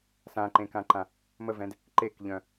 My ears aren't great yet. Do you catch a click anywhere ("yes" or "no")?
yes